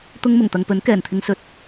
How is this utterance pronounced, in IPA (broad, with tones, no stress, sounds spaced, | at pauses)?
t̪ ʊ˥ ŋ m ʊ˨˩ ŋ t̪ ɐ˨ ŋ p ɵ˨˥ n k ɛː˨˩ n t̪ʰ ɪ˧ ŋ s ɵ˧ t̚